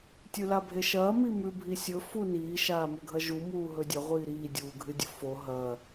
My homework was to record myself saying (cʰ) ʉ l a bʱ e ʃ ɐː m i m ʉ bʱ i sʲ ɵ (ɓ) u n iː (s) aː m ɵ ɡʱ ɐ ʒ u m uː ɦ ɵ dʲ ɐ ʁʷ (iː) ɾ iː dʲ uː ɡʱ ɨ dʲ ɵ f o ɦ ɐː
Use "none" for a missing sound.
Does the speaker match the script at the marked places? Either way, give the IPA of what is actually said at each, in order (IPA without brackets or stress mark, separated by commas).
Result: tʲ, f, ʃ, iː